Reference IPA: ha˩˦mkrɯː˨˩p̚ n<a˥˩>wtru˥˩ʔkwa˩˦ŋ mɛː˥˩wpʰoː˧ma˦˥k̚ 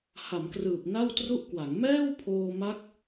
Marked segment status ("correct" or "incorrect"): correct